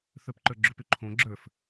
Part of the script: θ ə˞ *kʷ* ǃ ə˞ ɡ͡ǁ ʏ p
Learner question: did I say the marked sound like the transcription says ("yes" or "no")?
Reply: no